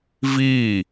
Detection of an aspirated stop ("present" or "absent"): absent